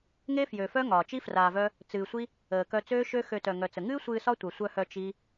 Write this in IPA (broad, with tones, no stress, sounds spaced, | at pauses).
ŋ e˦ f j ø˨ f œ˦ ŋ ɒː˨ t͡ʃ i˦ f r aː˧ v œ˦ | t͡s ɨː˨ sʷ i˦ | əː˨ k œ˧ t͡s øː˦ ʃ ø˦ x ø˧ t œ˨ ŋ œ˨ t͡s ə˨ ŋ ɨː˦ sʷ ɨː˧ s ɒ˦ tʷ œ˨ sʷ œ˧ h œ˧ t͡ʃ i˦